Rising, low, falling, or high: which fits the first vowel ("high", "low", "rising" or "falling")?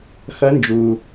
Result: rising